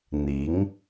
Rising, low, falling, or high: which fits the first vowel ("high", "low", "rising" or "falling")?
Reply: rising